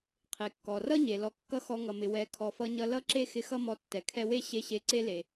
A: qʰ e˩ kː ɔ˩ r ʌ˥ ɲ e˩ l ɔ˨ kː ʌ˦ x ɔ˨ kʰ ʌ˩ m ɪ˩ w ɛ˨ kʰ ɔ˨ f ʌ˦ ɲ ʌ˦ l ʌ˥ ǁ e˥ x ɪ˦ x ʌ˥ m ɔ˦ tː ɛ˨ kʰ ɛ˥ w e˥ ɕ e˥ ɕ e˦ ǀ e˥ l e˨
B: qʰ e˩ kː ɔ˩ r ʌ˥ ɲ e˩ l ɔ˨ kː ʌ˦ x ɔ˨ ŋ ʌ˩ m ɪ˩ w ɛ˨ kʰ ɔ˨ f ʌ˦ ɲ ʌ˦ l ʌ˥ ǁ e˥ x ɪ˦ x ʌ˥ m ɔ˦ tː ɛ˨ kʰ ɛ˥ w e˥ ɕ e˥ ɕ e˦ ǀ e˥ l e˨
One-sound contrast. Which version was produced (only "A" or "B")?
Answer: B